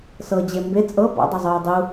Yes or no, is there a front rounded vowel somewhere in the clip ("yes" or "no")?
no